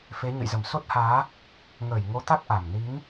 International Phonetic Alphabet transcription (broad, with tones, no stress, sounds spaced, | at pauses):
f e˨˦ ɲ ə̰˧˨ j z ə˧˩ m s o˦˥ t̚ h aː˨˦ | ŋ əː˧˩ j ŋ o˨˦ t̪ a˦˥ k̚ ʔ a˨˩ m n i˨˦ ŋ